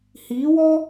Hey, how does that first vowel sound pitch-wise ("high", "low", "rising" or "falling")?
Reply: rising